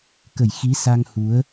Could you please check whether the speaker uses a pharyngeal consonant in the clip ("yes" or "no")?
no